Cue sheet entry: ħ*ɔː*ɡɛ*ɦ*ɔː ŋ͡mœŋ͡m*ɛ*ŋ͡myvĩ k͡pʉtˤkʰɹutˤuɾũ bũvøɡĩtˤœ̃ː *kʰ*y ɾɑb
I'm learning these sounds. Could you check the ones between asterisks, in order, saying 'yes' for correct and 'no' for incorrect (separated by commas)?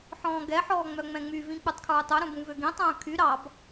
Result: no, no, no, yes